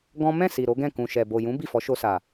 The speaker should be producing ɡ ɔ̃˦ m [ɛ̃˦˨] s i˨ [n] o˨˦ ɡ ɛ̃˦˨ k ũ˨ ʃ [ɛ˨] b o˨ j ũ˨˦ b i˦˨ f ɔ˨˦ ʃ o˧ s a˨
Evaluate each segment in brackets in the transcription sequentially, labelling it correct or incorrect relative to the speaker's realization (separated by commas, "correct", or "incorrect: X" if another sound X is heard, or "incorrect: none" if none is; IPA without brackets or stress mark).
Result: correct, incorrect: ɾ, correct